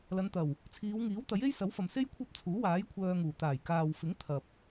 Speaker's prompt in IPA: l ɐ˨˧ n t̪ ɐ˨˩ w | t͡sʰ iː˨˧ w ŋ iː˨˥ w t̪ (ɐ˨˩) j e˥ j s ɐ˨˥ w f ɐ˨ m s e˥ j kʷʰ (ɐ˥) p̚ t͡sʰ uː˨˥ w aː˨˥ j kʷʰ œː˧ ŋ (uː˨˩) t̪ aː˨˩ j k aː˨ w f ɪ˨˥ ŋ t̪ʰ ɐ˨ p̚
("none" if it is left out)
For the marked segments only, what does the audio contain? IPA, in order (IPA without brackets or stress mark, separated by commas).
ɐ˨˥, ɐ˥, uː˨˩